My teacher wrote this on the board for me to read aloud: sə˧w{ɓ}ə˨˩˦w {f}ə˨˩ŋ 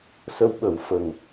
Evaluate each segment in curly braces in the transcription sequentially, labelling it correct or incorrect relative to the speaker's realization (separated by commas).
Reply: correct, correct